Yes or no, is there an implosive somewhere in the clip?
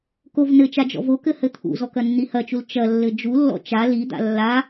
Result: no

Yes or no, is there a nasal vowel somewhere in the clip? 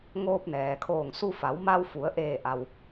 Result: no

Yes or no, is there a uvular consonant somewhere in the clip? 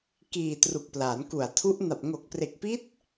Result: no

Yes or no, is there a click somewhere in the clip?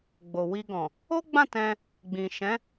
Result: no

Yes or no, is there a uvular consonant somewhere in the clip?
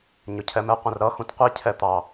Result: yes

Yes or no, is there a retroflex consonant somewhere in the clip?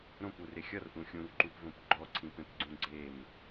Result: no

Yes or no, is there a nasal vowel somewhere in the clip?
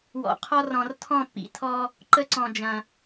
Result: yes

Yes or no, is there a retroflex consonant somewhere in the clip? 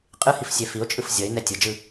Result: no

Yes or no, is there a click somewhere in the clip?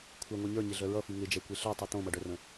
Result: no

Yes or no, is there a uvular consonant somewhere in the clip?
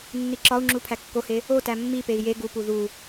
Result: no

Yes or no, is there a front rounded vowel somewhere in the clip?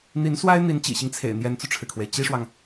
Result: no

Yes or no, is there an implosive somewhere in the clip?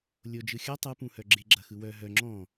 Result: no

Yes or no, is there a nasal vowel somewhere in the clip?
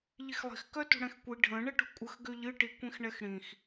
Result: yes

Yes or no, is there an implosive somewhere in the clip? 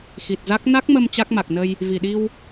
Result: yes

